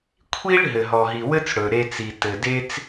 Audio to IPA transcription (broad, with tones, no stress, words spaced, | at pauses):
kʷʰi˥ɭ ɦɘ˩ɦɔ˩ɦi˩ wɘ˥t͡s ɽɵ˩ɾe˧t͡si˩ tɘ˩ de˥t͡s